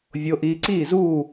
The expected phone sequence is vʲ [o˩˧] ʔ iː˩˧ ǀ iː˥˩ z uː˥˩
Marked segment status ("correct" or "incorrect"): correct